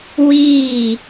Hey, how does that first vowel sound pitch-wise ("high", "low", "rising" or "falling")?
falling